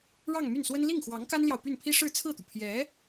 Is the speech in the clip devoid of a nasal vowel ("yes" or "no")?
yes